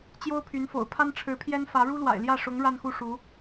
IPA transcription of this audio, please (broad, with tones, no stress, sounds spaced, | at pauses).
t͡ɕ j o˥ ʊ̯ pʰ y˧˥ n f o̰˨˩ ʊ̯ pʰ a˥ n ʈ͡ʂʰ ɻ̩˧˥ pʰ j ɛ˥ n f ä˧˥ ɻ u˥ l w a̰˨˩ ɪ̯ l j ä˥˩ ʂ ʊ˧˥ ŋ ɻ a˥˧ n x u˥˩ ʂ u˧˥